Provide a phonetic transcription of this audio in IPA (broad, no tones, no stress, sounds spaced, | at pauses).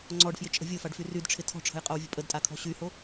ŋ͡ǀ ɔ ɖ f j ɪ t͡ʃʼ ə̤ vʲ o f a ɖ f y r y d ʈ͡ʂʰ ɪ tʰ ɔ̤ ʈ͡ʂʰ ə̤ j qʼ o w vʲ ə̤ pʼ ə d tʼ a kʰ ɔ̤ ɕ y h o